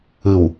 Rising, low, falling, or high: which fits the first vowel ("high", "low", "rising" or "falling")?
low